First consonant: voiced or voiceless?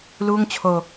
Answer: voiced